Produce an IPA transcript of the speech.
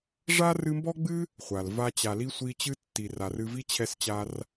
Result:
ʐ a˥ r ɨ˦ m b ɔ˥ ɡ͡b ɨ˥ | χʷ a˩ l v a˦ t͡ɕ a˨ l i˥ sʷ i˦ t͡ɕ ɨ˥ tː i˨ r a˨ r ɨ˦ v i˥ t͡ɕʰ ɛ˦ s t͡ɕ a˦ r

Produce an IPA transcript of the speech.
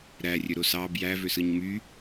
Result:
ɾ æ rʲ ø ɾ o s ɑ b j æ v ø s ɯ ɲ m y

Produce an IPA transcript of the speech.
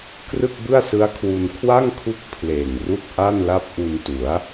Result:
k r ɯ˥˩ k̚ b ɯ˥˩ a̯ s ɯ˦˥ a̯ kʰ w u˧ n kʰ w a˥˩ ŋ kʰ u˦˥ k̚ pʰ l eː˨˩ ŋ r u˥˩ k̚ ʔ a˥˩ n l a˦˥ p̚ ʔ u˧ n t u˩˦ a̯

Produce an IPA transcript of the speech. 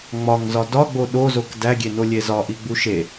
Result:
ŋ͡m ɒ ŋ z ɒ d ɒ ɡ͡b o ɗ o z o k d æ ɡʲ e n o lʲ e z ɒ ʔ i ɡ͡b u ʃ e

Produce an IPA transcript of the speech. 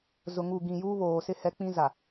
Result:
z ʊ˨ ŋ u˨ ɡ ĩ˨ j uː˦ β oː˨ s ɪ˦ h ɛ˦ k͡p ĩ˦ z a˨

